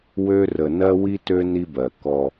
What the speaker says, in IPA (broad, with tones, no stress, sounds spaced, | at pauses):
w ø˦ r ə˨ n ɜ˦ w i˦ t ø˦ n i˦ b ɜ˨ k ɔ˦